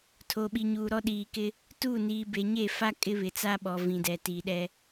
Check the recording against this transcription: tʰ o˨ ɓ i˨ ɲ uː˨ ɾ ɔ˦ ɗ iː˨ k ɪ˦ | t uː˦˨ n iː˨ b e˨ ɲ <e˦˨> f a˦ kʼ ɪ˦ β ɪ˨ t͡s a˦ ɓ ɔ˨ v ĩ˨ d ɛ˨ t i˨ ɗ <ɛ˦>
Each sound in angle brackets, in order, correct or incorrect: correct, correct

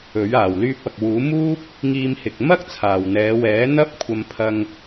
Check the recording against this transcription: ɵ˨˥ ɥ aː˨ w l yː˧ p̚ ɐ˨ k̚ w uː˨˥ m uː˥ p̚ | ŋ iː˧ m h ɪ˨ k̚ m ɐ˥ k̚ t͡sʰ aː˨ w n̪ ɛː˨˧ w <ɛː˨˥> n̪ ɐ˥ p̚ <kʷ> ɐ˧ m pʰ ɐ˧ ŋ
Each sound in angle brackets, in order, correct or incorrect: correct, incorrect: kʷʰ

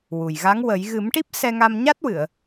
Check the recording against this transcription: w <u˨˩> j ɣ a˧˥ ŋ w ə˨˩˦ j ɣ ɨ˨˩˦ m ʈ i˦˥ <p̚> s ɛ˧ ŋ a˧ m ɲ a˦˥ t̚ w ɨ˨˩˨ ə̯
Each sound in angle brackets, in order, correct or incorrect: correct, correct

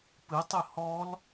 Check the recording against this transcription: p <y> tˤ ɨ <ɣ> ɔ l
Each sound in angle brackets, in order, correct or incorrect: incorrect: ɨ, incorrect: h

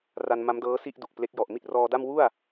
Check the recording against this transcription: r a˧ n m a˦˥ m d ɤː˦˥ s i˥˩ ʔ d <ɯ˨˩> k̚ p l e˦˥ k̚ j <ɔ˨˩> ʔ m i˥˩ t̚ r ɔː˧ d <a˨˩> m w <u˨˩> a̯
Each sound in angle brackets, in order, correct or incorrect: incorrect: u˨˩, correct, incorrect: a˥˩, incorrect: u˥˩

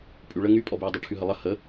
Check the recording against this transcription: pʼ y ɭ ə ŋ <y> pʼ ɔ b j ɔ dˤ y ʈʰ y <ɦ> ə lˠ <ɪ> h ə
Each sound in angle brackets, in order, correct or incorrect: correct, correct, incorrect: ə

